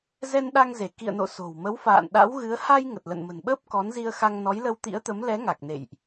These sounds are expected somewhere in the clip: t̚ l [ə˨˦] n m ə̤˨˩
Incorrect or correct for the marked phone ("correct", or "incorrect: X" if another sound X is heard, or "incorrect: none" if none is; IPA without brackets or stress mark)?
incorrect: ə̰˧˨